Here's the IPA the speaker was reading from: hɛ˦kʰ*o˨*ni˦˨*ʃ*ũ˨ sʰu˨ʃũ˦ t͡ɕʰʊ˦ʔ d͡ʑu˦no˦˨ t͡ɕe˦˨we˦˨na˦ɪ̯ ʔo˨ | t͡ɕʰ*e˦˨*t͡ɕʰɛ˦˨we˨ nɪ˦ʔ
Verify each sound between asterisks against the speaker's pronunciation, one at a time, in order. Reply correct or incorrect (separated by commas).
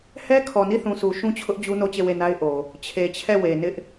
incorrect, incorrect, incorrect